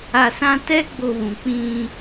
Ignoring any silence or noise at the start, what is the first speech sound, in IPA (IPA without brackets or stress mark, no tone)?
a